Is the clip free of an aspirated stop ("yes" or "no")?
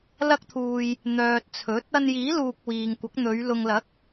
no